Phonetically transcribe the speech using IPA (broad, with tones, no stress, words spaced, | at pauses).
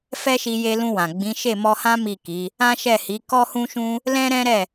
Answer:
fɛ˦ʃi˧je˧lũ˧ wã˨ɡ͡bĩ˨˦ ʃe˦˨mɔ˧hã˦ mi˦˨ ki˨˦ | ã˦ʃɛ˦˨hi˨˦ kɔ˦hũ˦ʃũ˦ | lɛ̃˦ɾɛ̃˦ɾɛ˦˨